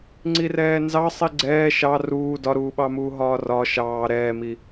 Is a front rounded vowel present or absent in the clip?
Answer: absent